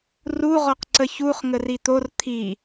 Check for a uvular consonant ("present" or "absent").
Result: present